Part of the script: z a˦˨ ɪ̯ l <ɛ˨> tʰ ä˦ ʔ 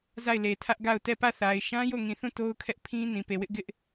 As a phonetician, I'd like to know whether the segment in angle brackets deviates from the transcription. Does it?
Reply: yes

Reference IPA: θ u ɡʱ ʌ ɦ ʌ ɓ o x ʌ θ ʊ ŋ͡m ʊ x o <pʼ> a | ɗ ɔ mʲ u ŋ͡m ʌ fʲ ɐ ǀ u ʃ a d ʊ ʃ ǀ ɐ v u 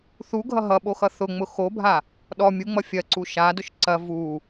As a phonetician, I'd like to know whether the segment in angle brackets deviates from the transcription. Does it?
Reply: yes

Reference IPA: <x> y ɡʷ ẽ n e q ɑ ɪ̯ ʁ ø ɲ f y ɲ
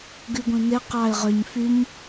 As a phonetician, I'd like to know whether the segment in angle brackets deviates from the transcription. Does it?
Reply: yes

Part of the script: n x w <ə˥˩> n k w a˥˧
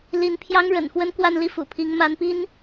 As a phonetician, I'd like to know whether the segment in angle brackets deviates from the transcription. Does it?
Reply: yes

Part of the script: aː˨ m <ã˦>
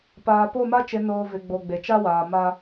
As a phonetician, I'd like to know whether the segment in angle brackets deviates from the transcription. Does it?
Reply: yes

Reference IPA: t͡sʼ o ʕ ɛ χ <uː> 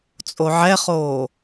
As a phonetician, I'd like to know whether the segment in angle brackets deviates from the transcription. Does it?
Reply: yes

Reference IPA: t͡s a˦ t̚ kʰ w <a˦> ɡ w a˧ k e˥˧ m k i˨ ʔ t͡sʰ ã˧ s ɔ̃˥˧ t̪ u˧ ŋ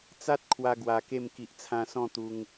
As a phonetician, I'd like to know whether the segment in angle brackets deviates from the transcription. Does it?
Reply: yes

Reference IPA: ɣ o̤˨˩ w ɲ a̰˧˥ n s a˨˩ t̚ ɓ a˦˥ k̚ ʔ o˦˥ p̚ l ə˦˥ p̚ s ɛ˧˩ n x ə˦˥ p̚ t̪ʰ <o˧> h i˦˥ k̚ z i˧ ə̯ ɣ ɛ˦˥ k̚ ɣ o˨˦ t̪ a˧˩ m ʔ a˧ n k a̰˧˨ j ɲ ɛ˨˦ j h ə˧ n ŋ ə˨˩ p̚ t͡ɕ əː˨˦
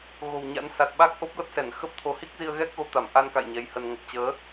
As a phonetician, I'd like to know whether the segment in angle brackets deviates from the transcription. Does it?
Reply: no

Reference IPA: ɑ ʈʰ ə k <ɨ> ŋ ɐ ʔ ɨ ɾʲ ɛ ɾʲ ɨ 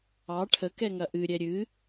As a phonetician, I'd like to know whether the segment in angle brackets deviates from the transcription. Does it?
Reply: yes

